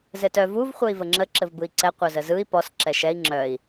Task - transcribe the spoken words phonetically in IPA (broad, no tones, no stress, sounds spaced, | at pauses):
z ɘ t œ v u v χʷ œ i̯ v ə ŋ͡ǁ ə ǁ ɘ v b ɯ i̯ ǀ ɛ qʷ œ z ə z ɯ i̯ p ɔ s ǁ ɛ ʃ ɛ i̯ ŋ͡ǁ œ i̯